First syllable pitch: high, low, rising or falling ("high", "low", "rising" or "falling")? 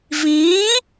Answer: rising